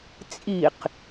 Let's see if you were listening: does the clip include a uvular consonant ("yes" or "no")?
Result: yes